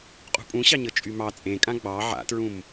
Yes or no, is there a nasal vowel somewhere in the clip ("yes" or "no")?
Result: yes